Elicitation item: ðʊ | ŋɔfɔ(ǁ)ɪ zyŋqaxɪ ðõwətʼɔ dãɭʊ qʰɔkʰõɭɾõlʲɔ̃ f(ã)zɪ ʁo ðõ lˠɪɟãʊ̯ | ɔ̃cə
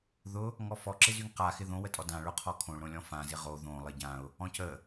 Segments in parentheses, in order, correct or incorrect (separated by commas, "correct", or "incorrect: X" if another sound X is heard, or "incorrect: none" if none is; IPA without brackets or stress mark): correct, correct